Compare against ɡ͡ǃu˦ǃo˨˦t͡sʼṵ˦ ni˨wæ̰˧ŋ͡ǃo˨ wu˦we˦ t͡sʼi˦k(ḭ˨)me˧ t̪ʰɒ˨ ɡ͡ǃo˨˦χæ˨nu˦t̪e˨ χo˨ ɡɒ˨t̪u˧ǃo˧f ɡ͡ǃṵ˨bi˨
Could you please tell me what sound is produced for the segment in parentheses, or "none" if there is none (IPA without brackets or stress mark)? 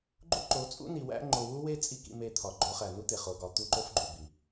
ḭ˧